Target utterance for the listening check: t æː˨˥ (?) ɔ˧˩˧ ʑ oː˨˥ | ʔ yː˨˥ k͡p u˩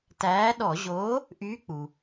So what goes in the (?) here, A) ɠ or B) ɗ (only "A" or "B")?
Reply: B